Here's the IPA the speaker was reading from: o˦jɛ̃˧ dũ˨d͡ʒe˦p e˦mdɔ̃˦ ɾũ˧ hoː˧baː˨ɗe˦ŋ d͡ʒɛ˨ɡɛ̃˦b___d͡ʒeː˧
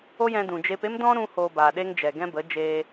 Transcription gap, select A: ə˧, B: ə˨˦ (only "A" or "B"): B